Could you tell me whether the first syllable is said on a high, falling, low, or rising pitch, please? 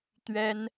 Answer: high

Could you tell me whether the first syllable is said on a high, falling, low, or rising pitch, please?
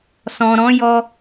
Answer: low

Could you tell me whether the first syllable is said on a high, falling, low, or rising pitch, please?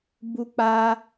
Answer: high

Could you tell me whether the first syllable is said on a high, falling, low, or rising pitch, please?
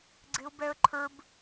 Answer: high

